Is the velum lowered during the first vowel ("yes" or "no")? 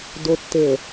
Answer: no